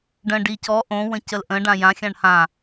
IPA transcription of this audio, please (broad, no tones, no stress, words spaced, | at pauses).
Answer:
ɖə̃ ɖicɔ ʔõ wə̃cəlʔə̃ ɖãjã xʲãɳhã